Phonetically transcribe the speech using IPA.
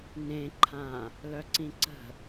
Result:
nẽǃʰã | lœǀĩǀə̤

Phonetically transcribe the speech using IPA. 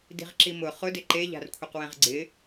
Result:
di̤ʁǁimʊ χʊ dɪǃe ʎa̤rkʷʰiqwɛ̃ʁɡ͡ǀɪ

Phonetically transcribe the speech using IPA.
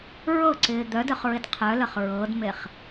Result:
ɹɤǀɪː d̪œdœχɹɪd qʰœləχ ɹɤdmeχ

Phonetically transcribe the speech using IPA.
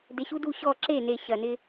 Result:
de˨ɕu˦du˦˨ɕɔ˦˨ ǁe˦˨ne˨ ɕɐ˨ nɪ˦

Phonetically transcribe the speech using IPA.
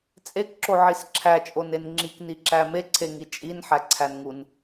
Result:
t͡sʼekǁoʕis ǁʰæt͡ʃʼonen ŋ͡ǁikniǁæ meǀʰeŋi t͡ʃʼinħæǀʰænŋun

